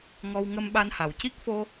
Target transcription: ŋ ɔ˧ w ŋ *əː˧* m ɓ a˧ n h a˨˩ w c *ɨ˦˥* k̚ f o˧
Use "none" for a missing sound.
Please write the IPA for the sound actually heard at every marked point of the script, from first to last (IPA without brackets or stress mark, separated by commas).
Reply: ə˧, i˦˥